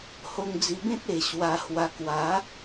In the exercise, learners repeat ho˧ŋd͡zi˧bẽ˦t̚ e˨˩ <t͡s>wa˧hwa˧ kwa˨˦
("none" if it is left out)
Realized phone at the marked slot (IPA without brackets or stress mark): ɕ